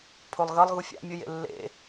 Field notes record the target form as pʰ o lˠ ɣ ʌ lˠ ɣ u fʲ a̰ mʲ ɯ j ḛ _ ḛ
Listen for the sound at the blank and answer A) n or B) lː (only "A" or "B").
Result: B